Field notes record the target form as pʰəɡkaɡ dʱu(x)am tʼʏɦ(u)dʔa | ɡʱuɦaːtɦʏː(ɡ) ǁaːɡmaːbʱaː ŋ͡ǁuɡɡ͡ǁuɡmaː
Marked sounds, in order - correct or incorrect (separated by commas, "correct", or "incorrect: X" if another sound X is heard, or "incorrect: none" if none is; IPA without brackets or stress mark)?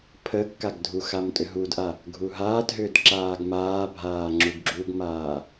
correct, correct, incorrect: d